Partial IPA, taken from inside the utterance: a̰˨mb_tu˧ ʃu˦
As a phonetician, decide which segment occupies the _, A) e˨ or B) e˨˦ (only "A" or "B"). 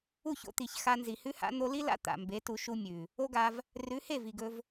B